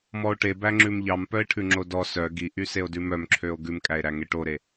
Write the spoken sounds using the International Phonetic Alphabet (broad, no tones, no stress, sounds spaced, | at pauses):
m ɔ o̯ ʈ e b æ ŋ͡ǁ ʉ m ʎ ɑ m p œ e̯ ʈʰ ʉ ŋ͡ǁ o d ɔ s œ ɡ i ʔ y s e o̯ d ʉ m œ m ǁʰ ø o̯ ɡ ʉ m kʼ æ e̯ ɾ æ ŋ e ʈ o ɾ e